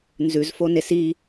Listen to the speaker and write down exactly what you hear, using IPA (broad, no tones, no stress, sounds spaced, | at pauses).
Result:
n z ʉ z f o n e s i